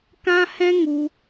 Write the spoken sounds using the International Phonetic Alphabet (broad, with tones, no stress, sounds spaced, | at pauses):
k ã˦ h ɛ̃˦ ŋ u˧